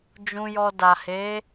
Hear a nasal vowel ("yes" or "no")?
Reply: yes